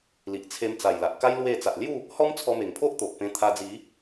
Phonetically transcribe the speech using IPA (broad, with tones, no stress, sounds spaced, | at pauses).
l i˨ ʔ t͡sʰ e˧ m t͡s a˨˩ j l a˨ ʔ k a˦ j l w e˥˧ t͡s a˨ ʔ l j u˥˧ | h ɔ˦ m t͡sʰ ɔ˧ m e˨˩ ŋ pʰ o˦ ʔ t̪ o˨ ʔ p ẽ˧ t̪ʰ a˧ d͡z i˨˦